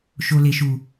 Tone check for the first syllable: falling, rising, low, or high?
low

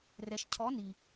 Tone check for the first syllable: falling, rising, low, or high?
low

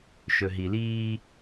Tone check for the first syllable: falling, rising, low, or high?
low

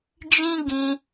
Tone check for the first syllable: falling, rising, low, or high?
high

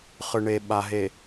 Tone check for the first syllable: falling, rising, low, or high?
low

